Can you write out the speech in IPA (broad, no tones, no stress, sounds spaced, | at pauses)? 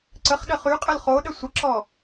ǀ ə χ ɗ ə χ y qʼ ə l χ o ɗ ə sʷ ə ǁ ɔ